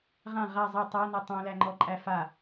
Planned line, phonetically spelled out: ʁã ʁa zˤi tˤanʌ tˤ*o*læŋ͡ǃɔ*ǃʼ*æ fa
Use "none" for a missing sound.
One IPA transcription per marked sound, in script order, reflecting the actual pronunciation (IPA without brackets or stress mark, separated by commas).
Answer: õ, ǃʼ